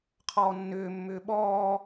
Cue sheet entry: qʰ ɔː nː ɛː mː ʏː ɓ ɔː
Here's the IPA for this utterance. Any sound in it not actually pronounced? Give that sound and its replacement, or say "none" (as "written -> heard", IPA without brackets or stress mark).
ɛː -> ʏː